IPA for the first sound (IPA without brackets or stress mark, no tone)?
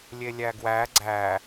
lʲ